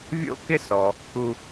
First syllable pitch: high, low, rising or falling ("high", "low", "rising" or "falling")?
high